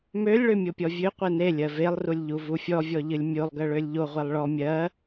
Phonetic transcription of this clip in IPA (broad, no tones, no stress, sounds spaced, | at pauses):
m ø lʲ ɭ ø mʲ o pʲ ɔ vʲ ø qʷ e n e lʲ ɜ v e lˠ r u lʲ ʎ u v u fʲ ɔ vʲ ɔ ʎ ɨ lʲ mʲ o lˠ ɡ ɜ ɭ ø lʲ ʎ o ʁʷ e lˠ ɭ ɔ mʲ ɜ